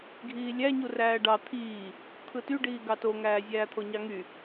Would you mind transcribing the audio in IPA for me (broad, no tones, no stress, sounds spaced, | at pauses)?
ɡʱ iː lʲ æ ɲ u r æː ɖ ɑ t̪ʰ iː | t̪ʰ ɯ t y ɖ iː ɡ ɑ t o ŋ æː zʲ æː t̪ʰ o ɲ ɑ ŋ y